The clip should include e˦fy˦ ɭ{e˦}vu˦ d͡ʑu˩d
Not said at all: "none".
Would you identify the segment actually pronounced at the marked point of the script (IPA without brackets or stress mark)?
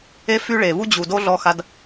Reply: e˩